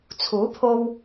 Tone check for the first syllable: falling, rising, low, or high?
rising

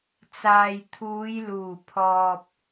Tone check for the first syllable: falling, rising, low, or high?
low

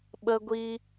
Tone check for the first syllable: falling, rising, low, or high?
high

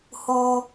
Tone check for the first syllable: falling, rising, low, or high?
high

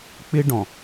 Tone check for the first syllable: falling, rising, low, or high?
high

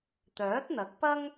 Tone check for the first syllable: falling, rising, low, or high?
rising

